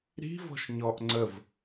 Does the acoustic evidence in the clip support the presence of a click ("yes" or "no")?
yes